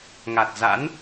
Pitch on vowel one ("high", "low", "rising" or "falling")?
low